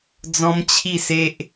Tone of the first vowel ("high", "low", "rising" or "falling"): high